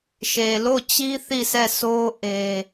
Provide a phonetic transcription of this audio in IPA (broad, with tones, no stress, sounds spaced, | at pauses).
ʃ e˨ l o˦˨ t͡ɕ i˦ θ i˦˨ sʰ ɛ˦˨ s o˦ ʔ e˦